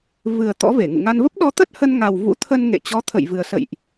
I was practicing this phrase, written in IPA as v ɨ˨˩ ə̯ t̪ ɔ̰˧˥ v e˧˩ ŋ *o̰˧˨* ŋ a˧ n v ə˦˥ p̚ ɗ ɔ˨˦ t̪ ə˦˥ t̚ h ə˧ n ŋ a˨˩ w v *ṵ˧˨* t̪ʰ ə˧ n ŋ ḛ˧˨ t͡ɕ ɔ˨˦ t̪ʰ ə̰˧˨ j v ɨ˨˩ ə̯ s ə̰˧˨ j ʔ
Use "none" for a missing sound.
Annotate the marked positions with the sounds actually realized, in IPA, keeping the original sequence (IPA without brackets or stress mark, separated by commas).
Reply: ṵ˧˨, ṵ˧˥